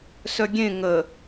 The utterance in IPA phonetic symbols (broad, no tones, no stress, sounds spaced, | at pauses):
s œ ɡʲ ẽ ŋ ə